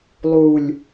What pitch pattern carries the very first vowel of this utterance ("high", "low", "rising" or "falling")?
low